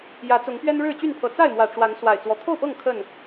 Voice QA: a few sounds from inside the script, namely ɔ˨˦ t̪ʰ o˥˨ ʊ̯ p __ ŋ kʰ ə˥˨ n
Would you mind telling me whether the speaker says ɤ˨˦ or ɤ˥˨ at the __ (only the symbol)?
ɤ˥˨